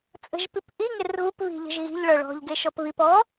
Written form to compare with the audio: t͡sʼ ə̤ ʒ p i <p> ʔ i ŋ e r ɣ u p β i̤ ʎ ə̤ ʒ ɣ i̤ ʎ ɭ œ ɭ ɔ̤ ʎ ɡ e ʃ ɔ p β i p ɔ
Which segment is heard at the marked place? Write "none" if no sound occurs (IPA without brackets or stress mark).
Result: p